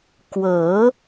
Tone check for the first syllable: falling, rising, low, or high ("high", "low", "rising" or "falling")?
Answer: rising